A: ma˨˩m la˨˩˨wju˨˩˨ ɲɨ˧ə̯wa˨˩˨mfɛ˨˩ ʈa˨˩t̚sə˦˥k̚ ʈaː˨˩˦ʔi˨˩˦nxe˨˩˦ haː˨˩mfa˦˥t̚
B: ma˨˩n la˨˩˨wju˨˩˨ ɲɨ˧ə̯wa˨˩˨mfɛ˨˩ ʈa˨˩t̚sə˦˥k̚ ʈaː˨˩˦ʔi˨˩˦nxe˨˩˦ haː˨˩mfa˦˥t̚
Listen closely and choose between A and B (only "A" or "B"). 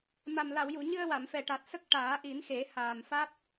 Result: A